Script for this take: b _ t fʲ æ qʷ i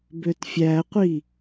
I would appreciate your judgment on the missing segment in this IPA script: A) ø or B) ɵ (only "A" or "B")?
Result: A